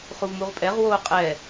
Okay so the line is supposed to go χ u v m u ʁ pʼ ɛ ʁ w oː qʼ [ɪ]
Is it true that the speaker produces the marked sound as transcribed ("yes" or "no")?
no